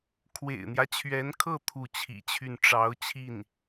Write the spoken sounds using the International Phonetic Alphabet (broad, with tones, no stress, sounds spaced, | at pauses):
kʰ w ḛ˨˩ ɪ̯ n̪ j ä˦ t͡ɕʰ ɥ ɛ˧˥ n kʰ ɤ˥˧ t̪ʰ u˥˩ t͡ɕʰ ḭ˨˩ t͡ɕʰ y˥˩ n ʈ͡ʂ ɑ˧˥ ʊ̯ t͡ɕʰ i˥˩ n